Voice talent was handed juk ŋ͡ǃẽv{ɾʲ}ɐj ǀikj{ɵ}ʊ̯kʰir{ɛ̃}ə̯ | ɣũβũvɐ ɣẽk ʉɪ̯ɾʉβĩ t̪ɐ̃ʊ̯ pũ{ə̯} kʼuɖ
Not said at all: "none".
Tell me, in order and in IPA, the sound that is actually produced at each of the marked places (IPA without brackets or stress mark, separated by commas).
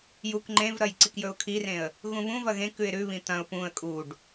ɾ, ɵ, ẽ, ə̯